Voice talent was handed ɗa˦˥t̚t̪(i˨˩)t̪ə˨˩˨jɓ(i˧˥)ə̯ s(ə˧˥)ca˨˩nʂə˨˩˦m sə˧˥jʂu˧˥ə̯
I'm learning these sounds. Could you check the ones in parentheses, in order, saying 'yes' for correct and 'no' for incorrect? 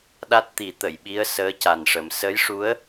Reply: no, yes, no

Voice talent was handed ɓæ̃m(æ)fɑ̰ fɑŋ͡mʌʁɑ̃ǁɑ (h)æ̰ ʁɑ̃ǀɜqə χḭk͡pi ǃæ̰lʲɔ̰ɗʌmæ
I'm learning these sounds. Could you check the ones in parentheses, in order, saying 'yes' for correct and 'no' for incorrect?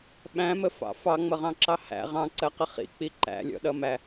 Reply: no, yes

